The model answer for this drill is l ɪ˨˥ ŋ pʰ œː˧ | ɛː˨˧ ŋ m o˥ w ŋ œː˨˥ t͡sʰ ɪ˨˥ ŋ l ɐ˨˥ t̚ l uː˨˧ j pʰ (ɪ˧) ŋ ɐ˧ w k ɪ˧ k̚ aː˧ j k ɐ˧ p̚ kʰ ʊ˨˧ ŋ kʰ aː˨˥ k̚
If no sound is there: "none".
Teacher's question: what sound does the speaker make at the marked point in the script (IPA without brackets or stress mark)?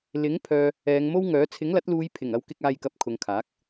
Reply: ɪ˨˩